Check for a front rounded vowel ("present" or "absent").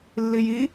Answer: absent